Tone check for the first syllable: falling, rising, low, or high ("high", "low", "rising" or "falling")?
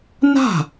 falling